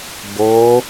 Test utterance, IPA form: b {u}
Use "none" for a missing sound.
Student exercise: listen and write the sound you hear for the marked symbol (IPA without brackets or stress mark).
o